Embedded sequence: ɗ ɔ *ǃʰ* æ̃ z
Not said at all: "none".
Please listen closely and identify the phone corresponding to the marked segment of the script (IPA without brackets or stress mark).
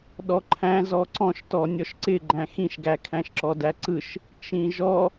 ǃʰ